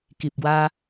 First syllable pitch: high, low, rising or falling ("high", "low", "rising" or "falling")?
low